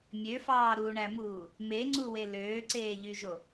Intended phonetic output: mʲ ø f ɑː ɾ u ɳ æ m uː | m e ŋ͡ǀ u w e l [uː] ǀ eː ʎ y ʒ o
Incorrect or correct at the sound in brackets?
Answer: incorrect: øː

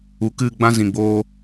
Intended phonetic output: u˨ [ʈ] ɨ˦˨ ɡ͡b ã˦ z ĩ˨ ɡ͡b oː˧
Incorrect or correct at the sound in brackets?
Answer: incorrect: k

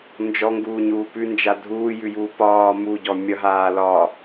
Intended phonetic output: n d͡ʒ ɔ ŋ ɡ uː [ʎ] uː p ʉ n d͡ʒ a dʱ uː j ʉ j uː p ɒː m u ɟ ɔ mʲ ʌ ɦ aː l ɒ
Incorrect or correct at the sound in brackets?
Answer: incorrect: ɲ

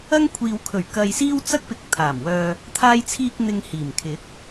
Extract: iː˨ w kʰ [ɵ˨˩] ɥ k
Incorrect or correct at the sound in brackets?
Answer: correct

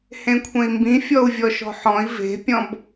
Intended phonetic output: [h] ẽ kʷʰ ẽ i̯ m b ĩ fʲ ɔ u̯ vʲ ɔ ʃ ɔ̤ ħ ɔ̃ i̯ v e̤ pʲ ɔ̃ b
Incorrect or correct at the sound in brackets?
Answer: correct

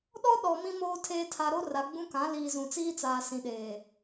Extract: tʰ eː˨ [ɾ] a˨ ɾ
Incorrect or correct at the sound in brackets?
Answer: incorrect: tʰ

